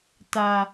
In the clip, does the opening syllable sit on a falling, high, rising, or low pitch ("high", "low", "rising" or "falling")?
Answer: low